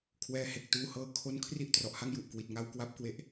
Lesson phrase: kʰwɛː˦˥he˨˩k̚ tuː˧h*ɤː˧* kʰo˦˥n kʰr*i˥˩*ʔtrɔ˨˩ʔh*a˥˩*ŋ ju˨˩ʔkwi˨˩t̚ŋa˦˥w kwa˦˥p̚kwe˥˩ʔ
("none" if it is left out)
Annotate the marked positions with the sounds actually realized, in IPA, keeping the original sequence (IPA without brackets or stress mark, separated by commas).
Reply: ɤː˧, i˥˩, a˥˩